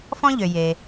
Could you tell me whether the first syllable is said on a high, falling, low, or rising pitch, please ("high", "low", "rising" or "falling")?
high